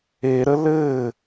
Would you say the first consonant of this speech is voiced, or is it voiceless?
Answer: voiced